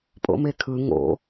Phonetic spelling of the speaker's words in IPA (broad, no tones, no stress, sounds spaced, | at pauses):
pʼ o̰ m e kʰ ɯ ŋ o̰